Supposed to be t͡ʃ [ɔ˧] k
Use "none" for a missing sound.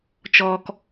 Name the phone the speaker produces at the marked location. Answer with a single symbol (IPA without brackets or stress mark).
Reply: ɔː˧